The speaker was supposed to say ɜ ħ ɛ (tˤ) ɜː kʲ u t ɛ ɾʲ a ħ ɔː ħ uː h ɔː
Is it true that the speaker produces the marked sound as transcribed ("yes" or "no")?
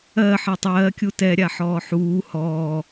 yes